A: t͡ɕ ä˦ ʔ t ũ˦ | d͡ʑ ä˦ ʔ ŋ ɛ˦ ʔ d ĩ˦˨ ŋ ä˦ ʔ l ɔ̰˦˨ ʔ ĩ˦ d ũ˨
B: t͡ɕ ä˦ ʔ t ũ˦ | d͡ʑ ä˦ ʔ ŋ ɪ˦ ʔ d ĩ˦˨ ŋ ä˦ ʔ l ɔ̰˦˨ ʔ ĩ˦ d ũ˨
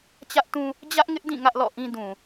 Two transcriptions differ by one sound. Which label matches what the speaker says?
B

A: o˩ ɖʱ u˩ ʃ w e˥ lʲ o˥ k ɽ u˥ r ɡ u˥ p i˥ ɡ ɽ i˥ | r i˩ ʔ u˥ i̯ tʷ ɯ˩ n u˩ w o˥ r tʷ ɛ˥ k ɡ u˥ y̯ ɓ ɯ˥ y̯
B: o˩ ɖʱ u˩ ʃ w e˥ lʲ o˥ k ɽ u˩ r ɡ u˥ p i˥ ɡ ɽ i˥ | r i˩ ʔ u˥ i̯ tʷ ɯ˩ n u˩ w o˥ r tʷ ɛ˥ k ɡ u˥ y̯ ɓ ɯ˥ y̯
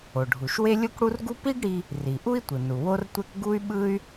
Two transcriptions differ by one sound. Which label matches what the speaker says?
A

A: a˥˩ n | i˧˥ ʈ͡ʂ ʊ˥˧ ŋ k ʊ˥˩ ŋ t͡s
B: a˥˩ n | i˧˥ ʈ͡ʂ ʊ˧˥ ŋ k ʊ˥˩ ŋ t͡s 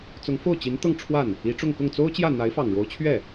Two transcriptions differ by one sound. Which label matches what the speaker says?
A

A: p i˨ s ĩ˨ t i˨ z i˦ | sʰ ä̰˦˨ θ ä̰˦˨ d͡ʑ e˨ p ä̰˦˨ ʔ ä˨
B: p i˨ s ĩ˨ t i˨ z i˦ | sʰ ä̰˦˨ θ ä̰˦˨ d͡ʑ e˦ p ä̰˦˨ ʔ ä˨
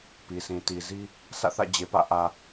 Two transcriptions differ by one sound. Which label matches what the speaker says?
A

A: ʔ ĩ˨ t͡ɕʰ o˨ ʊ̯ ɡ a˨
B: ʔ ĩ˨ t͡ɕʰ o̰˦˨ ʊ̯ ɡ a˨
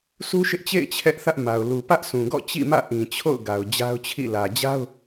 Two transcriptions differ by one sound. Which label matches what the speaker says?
B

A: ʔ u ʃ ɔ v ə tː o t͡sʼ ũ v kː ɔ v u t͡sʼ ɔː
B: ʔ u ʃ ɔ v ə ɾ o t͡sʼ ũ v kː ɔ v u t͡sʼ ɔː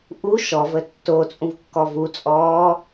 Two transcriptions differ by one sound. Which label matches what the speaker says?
A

